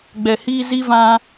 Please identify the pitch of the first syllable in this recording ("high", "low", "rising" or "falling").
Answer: low